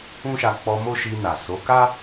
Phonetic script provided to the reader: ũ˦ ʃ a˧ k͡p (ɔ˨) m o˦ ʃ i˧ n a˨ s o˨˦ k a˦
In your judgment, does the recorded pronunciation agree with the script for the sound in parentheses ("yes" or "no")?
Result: no